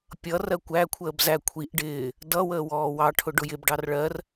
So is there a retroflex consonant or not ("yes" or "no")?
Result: yes